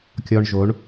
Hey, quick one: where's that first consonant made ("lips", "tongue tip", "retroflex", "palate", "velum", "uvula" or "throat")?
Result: velum